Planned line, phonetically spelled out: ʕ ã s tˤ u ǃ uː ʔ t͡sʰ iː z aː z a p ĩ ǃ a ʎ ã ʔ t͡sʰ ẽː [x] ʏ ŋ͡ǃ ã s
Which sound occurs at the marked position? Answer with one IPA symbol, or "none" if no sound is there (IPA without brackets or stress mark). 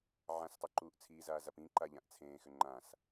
x